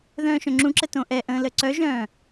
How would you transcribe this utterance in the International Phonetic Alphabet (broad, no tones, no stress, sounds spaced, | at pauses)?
ð œ̃ː ʃ œ̃ ŋ͡ǁ ũ ǁ ə t õ ʔ ɛ ʔ ə̃ː l ə ǀ œ ʒ œ̃ː